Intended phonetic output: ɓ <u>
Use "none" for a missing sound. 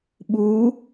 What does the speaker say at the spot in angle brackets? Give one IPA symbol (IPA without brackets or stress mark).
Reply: u